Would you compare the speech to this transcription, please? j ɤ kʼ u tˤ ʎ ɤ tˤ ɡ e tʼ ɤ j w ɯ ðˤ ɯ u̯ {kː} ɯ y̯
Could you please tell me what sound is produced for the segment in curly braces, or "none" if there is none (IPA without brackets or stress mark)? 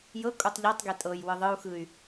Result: x